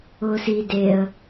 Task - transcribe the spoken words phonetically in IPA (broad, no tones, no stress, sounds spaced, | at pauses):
ʊː s i d e ə̯